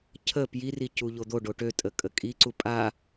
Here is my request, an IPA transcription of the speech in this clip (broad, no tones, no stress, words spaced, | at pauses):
cʰə pjiri cuʎod̪oɖo ʈøtʼə kʼəkʼiǀu pʼa